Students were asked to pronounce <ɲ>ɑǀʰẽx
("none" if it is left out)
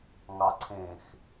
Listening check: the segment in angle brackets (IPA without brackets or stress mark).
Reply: ŋ